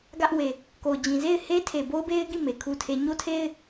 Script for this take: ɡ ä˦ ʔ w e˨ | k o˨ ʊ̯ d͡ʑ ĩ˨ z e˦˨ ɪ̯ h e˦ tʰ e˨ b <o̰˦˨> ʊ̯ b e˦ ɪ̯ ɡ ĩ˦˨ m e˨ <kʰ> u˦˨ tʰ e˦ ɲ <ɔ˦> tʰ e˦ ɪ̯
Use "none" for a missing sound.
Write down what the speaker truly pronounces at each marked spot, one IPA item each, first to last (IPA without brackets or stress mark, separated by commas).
o˦, kʰ, o˦